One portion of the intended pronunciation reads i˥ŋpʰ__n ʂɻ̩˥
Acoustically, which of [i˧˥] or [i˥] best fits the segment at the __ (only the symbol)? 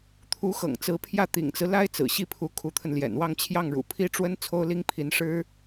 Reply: i˧˥